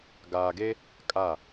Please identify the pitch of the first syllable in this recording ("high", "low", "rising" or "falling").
low